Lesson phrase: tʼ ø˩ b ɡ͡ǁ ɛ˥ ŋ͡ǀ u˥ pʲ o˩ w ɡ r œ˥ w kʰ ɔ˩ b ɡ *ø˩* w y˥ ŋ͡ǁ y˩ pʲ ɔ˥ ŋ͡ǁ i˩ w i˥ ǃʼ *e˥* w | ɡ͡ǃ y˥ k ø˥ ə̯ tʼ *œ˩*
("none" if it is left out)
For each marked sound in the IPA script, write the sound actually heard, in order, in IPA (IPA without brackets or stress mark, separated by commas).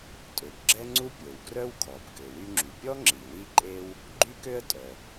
ø˩, e˥, œ˩